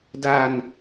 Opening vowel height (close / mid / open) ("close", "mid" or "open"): open